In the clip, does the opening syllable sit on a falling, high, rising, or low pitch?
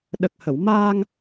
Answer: low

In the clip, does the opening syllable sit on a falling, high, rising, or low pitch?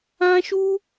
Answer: high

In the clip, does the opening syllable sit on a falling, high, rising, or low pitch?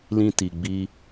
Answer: low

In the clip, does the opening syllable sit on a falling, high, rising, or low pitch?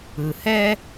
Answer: low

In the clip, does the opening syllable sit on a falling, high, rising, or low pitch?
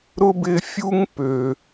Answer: high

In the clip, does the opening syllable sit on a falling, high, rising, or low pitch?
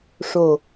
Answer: low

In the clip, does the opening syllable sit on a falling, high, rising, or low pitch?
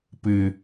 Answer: low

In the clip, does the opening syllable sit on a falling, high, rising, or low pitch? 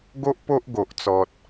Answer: high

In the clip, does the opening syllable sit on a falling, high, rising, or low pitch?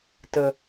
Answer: low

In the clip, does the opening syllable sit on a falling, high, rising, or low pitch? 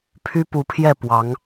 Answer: high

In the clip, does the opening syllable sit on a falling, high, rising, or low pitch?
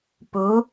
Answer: rising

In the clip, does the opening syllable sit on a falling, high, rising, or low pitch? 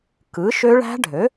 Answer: rising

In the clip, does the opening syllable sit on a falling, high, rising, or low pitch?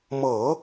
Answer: low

